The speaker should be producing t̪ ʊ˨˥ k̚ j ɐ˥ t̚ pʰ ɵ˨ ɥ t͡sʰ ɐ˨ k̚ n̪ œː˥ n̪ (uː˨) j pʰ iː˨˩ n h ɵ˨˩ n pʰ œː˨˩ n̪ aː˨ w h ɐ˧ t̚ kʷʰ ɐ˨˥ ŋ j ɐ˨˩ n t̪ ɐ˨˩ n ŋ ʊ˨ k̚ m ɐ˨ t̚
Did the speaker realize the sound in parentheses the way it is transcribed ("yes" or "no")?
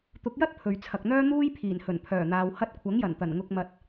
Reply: no